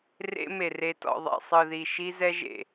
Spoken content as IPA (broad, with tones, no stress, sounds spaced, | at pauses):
r ḛ˦ m e˨ r e˨ t ɔ̰˨ ðˤ ḛ˨ sˤ ɯ˨ ð i˨ ʃ i˦ z ɛ˦ ʒ ḛ˨